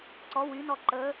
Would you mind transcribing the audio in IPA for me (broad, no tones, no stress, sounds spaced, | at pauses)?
ǀ ɔ w y n ɔ ǃ ə